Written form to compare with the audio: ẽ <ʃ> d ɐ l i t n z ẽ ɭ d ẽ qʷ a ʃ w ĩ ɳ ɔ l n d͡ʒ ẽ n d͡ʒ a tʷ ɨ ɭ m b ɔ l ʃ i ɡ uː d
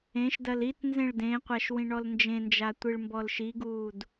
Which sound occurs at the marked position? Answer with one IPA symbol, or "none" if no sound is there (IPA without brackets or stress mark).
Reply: ʃ